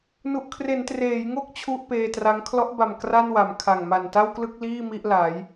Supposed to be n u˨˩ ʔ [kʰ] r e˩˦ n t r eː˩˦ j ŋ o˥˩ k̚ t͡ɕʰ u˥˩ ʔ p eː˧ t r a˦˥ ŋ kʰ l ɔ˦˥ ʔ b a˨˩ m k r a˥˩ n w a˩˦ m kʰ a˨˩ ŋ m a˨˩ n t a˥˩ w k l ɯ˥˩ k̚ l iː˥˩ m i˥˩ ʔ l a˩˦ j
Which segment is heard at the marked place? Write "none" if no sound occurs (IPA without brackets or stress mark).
kʰ